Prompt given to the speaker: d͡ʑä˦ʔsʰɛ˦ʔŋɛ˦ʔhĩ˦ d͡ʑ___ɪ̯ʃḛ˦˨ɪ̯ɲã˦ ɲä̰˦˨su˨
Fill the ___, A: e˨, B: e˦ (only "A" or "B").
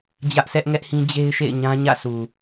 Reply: B